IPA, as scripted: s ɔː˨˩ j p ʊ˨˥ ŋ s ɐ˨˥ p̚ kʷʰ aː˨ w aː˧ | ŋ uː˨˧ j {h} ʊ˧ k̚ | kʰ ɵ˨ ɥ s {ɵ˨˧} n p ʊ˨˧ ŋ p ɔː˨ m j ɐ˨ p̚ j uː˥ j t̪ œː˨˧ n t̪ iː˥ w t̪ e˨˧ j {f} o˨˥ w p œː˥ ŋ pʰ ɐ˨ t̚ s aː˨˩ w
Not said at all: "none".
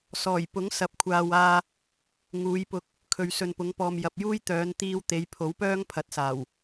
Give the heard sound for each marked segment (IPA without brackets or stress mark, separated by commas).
p, ɵ˨, pʰ